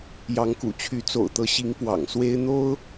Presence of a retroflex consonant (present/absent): absent